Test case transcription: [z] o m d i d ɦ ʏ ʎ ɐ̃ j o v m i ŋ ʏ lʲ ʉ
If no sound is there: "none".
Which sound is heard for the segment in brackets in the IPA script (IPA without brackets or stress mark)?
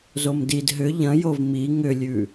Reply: z